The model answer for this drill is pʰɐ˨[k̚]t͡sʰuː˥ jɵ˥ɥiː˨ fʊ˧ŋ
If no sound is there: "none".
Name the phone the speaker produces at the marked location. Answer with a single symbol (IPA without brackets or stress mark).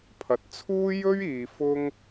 t̚